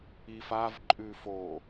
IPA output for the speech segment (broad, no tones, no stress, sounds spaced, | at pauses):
i f a v ǃʼ ʉ f o